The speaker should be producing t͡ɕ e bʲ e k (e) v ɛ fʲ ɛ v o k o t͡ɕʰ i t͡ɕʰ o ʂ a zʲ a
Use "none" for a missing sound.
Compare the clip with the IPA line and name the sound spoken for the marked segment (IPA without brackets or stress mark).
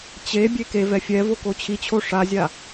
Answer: e